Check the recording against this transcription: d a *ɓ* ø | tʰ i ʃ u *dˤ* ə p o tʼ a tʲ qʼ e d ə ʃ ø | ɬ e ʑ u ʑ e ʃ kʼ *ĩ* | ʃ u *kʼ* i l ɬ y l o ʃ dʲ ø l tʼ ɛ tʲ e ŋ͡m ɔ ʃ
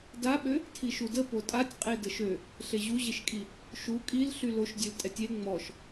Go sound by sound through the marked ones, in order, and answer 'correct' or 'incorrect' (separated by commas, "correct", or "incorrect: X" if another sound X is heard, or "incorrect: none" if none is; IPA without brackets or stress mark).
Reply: correct, incorrect: d, incorrect: i, correct